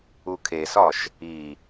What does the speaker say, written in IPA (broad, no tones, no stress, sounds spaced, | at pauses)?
u kʰ e s ɒ ʃ | i